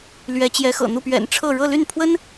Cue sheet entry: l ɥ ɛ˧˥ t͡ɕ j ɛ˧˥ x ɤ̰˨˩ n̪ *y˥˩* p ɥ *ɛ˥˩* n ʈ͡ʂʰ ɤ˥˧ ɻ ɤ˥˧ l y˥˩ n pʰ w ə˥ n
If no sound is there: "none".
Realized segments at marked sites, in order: u˥˩, ɛ̰˨˩

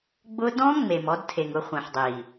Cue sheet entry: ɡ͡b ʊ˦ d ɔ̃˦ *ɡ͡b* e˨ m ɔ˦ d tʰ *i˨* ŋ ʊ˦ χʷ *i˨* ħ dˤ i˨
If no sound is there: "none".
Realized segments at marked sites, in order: ŋ͡m, e˨, ĩ˨

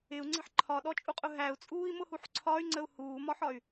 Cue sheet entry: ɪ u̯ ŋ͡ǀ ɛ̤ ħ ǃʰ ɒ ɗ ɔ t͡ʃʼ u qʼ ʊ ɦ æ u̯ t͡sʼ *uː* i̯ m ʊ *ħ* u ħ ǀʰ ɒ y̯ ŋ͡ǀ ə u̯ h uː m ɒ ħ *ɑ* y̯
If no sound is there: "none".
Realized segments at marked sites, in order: uː, h, ɒ

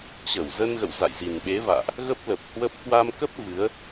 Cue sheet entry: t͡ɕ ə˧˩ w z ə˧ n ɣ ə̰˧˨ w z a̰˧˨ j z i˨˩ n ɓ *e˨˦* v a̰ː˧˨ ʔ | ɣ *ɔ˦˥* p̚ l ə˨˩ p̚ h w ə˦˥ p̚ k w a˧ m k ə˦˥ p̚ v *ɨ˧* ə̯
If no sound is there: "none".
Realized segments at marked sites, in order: e˨˦, ə˦˥, ɨ˨˦

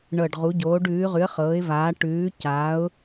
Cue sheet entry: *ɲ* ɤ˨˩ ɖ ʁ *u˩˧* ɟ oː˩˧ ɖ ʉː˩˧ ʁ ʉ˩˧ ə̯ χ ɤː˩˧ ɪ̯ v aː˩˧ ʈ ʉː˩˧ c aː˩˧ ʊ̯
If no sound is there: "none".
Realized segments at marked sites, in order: ɳ, u˩˧

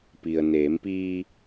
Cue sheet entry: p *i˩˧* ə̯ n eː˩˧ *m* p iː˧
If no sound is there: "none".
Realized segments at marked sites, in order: i˩, m

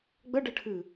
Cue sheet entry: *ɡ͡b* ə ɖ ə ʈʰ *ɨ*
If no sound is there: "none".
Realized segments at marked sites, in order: ɡ͡b, ɨ

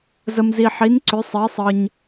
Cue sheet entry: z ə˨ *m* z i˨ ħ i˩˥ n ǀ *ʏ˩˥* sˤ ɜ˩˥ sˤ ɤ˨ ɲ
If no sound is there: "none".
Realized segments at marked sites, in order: m, ʏ˩˥

